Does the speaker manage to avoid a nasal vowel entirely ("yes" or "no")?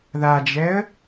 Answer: yes